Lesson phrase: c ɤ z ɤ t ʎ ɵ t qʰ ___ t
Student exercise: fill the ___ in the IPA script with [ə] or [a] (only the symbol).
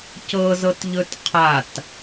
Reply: a